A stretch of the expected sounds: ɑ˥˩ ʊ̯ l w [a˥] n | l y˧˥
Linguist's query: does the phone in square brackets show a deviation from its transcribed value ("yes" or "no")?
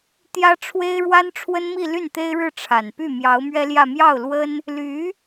yes